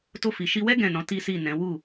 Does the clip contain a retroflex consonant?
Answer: no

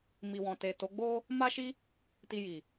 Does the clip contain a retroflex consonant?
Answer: no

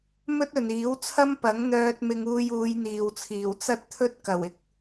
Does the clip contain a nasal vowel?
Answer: no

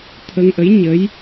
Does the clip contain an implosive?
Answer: no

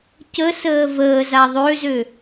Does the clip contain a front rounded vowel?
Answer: yes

